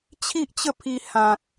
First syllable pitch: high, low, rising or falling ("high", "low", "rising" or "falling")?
high